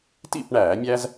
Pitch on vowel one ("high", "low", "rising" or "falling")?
falling